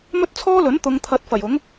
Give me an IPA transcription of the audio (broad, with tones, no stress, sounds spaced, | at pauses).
m ɵ˥ t̚ t͡sʰ ɔː˥ l ɵ˨˥ n t̪ ʊ˨˧ ŋ t̪ʰ ɐ˨˥ t̚ f ɐ˨˩ j ʊ˨˥ ŋ